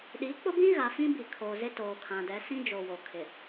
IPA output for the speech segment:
ɗi˨˦k͡pʊ˦bĩ˦ ɣa˨fĩ˦bi˨ kʰo˨zɪ˦ toː˨kʰã˨ dɛ˨˦sĩ˦d͡ʒo˨ wo˨kʰɪ˨

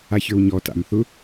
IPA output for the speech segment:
açə˞wɲɔ ta̰m θʊ

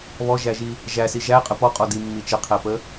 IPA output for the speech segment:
βɔʒæʒi | ʒæsi ʒæqʼə pɔqʼɔ dimːi t͡ʃəqʰæpə

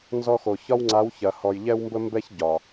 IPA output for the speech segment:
nzɔ˦xo˨ çɒ˦wŋ͡ǀa˨˦w çɐ˨ hɔ˨jʎɛ˦wmbə˦mbɛ˦ç ɟɒ˨

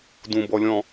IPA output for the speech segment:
dũbɔ lʲɔ̃

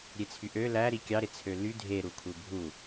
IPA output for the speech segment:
ɾʲet͡sʰyʔø læɾi kʲɑɾet͡sʰø ly dʱe ɾukʰubʱu

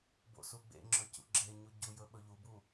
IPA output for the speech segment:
bo̰suɡ͡bḛŋ͡ǁɵ cṵɡ͡ǁeɲu ɟu jɵɓɵʎubu

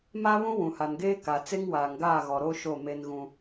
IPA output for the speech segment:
ma˦ βũ˦wũ˨ha˨nɡeː˦ ka˨ t͡se˦ŋwaː˨ŋɡaː˦˨ɣɔ˨ ɾo˦ ʃo˦˨ me˦n ɣũ˦

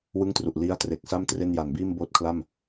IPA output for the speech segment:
wɯ˥˩ŋtru˨˩ʔ li˦˥a̯tre˨˩k̚sa˥˩m tre˥˩n ja˨˩nbiː˥˩m boː˦˥t̚kʰla˥˩m

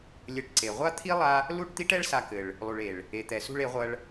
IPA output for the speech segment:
lʲɘ˨˦ʈǀe˨ ʁʷa˦ t̪ʰi˦lˠa˧ | lu˦˨ʈt̪i˦ʈɛ˦ɭ sa˧kɘ˨ɭ | lˠu˨ɭe˨ɭ | e˨t̪ɛ˨sṳ˧ɭ e˨˦ʁʷɐ˧ɭ

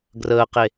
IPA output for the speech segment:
ɡrəːqe

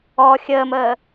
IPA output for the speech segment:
ɔ xʲəːməː

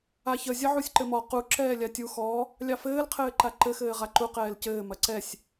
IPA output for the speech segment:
açə zʲɐʕusʲǃɘmɔ qu ǁɛːlʲatʲu xɔ | lʲɑfɘːl qʰɘːǃaǃɘ xɘːʁaǃu qɛːlcɘː mɐǀɛsʲ

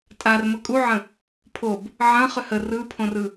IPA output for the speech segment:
tʼar məkʼuʕə̃ | pʰob | ʕɐ̃ χʏhə rɯpʰõrɯ

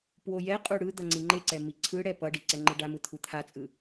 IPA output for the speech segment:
pwojɛqʼu ɽɯd̪ʌ ŋ͡ǀiŋ͡ǃeǀɛ miǀʰɯɽɛ pʌɖi ǀɛŋ͡ǃɯɖamɯ t̪ʰut̪ʰat͡sʼɯ

